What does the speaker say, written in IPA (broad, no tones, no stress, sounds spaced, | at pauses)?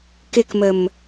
k ɪ k m ə m